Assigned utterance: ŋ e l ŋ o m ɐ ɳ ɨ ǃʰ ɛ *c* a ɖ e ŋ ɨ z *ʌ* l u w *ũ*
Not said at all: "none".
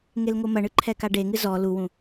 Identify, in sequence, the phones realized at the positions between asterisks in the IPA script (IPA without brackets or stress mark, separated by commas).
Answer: k, ɔ, ũ